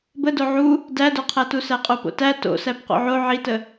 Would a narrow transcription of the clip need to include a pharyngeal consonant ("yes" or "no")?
yes